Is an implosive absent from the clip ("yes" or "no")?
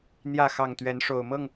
yes